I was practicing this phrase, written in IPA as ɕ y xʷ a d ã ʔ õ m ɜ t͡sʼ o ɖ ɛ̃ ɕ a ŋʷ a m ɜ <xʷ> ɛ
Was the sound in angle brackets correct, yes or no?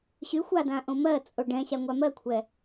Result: no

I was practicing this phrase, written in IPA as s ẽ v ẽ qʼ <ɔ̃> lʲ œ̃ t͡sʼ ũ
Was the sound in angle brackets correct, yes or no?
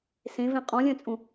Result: yes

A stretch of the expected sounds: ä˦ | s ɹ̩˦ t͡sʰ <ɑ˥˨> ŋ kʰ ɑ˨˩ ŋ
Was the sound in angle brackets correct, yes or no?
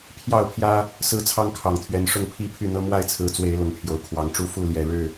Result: no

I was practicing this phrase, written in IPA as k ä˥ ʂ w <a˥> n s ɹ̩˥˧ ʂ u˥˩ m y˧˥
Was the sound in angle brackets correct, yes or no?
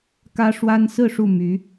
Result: yes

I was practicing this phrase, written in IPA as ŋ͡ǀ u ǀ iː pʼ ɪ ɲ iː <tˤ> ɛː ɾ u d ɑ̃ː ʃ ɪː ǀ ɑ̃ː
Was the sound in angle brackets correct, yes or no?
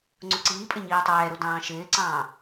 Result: yes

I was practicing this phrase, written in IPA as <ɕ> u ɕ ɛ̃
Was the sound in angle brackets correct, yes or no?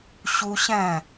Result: yes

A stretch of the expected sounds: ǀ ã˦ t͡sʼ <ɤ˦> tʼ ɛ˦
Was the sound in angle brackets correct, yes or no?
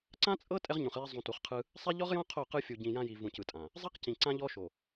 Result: yes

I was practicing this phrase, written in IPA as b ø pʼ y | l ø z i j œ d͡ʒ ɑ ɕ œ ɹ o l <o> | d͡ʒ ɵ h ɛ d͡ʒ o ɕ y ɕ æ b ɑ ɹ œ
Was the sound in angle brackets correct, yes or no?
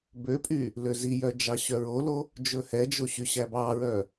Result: yes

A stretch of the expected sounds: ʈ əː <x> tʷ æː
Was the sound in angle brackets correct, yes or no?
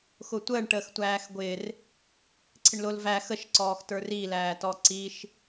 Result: yes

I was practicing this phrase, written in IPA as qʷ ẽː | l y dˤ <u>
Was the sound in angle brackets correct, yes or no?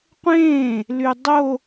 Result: no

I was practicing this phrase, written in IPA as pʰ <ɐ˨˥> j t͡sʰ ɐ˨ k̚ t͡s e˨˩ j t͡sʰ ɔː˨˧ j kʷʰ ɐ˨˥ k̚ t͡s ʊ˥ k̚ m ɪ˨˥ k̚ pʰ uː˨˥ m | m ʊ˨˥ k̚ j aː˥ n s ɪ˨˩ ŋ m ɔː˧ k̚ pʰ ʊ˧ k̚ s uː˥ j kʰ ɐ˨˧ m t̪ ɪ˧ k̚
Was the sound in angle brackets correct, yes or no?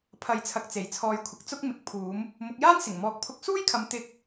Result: yes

